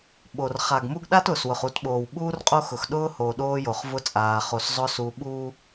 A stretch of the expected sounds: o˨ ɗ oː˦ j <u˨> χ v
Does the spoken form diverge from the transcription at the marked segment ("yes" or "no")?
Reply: yes